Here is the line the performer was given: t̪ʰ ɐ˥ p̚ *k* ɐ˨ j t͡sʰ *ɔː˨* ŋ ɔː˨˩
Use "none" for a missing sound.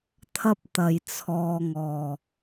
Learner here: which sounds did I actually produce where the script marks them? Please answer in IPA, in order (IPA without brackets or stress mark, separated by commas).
t̪, ɔː˨